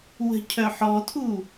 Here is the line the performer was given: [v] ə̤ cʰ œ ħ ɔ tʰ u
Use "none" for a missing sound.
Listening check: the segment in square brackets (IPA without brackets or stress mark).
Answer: w